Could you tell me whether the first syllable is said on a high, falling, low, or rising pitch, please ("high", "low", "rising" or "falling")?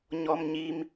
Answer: low